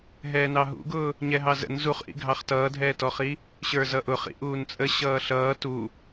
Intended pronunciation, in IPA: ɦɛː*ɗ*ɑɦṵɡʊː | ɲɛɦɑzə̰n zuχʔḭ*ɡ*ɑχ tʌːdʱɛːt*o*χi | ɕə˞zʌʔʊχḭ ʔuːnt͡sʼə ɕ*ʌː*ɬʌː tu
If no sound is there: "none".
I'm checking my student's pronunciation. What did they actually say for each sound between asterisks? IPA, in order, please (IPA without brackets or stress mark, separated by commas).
n, ɡʱ, ɔ, ʌː